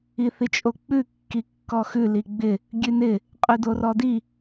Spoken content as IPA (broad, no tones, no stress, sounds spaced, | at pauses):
i θ i t͡ʃʼ o k͡p ʉ kː i kː ɔ x ʉ l i ɡ͡b ɪ | ɡʲ ʉ n ɪ | qʼ ʉ d o r ɔ d i